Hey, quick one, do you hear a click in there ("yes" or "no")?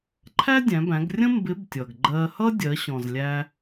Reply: yes